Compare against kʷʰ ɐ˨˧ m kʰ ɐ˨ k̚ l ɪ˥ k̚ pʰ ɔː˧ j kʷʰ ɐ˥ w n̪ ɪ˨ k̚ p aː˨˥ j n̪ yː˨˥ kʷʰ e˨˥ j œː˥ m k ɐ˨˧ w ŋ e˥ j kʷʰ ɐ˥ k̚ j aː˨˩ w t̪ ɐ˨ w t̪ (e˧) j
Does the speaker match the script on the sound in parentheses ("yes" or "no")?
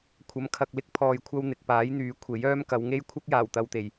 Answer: no